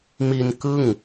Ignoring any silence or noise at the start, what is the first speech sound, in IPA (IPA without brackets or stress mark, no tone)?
m